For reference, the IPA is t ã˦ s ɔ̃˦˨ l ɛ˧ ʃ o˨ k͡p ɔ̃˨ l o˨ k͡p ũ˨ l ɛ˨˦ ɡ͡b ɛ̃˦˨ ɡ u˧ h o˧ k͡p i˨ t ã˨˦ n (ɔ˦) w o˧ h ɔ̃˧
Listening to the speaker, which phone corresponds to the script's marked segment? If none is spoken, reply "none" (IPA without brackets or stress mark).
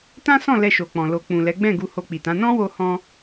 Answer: ɔ̃˦